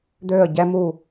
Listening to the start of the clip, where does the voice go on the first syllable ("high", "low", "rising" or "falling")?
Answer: falling